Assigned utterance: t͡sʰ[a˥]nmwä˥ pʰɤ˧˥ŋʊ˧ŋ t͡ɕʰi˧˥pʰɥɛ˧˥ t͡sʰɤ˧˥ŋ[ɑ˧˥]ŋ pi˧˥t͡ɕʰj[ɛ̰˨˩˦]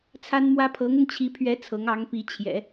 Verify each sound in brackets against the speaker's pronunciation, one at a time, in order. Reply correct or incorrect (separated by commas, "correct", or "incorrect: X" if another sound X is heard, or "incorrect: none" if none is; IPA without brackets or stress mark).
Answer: correct, correct, correct